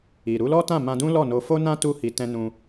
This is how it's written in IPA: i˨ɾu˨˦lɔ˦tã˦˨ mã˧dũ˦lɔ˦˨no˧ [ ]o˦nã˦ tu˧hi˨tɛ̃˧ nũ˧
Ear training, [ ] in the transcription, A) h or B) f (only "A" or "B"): B